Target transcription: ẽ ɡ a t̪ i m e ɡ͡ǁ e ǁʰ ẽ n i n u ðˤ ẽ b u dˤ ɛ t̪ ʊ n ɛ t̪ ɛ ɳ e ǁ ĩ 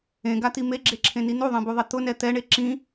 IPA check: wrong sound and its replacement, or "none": dˤ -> ðˤ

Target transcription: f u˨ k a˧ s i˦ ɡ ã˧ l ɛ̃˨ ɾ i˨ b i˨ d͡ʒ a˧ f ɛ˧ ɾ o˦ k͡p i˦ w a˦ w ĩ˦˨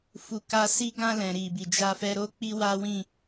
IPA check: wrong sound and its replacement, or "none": none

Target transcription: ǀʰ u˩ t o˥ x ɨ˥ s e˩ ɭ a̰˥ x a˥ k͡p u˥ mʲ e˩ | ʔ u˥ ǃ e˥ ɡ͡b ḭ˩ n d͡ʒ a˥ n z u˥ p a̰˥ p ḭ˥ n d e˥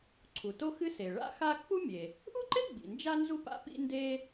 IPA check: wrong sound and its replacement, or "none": none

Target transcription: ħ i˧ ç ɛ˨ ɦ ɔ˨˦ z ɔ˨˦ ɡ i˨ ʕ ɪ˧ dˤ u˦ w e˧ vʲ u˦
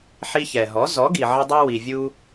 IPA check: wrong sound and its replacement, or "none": e˧ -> i˧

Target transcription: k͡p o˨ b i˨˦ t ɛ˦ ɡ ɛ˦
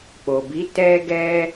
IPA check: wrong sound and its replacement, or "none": none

